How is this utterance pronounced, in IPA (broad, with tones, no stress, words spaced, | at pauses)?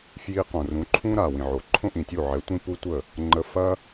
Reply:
fji˧qõ˨ rũ˨˦ǃʰũ˦ɾa˨ wĩ˨ʕo˨ǃʰõ˦ʔĩ˨ tʲu˦˨ʕɛ˨˦tʷĩ˦ pu˦tʷə˦˨ | ŋ͡ǃə˧fɐ˦